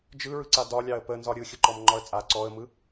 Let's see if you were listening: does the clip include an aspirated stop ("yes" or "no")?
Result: no